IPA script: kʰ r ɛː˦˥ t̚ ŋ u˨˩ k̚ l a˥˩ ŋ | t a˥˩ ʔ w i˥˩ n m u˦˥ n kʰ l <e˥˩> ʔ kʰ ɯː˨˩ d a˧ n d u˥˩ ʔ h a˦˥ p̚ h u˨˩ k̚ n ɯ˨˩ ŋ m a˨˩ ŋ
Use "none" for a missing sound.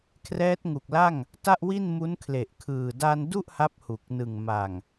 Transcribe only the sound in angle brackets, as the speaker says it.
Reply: e˨˩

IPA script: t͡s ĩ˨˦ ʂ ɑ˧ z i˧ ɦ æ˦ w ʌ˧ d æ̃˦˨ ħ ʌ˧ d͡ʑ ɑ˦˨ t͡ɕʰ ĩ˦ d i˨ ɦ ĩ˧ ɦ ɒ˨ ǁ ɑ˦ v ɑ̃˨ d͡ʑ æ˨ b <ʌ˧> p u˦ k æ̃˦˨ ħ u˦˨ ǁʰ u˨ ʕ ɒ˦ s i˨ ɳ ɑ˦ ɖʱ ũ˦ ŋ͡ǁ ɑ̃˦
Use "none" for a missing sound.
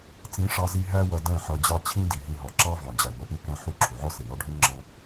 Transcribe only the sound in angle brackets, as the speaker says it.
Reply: ʌ˧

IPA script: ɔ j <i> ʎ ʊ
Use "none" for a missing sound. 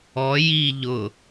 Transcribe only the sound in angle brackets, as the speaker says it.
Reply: i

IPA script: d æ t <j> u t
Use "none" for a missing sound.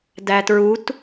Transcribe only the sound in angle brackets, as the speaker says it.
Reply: ɹ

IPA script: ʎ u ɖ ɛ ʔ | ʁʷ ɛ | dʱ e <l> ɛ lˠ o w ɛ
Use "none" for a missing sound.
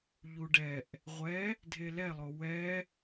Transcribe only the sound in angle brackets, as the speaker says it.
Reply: l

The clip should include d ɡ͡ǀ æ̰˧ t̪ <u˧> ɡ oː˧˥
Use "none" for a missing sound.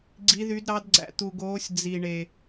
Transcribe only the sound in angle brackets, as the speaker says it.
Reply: u˧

